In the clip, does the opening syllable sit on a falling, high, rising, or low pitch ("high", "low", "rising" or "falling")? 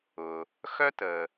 low